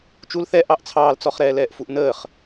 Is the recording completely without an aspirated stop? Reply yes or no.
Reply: no